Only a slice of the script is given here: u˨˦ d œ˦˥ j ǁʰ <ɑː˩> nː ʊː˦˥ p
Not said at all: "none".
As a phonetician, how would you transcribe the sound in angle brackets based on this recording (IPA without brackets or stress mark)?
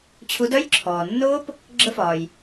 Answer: ɔː˩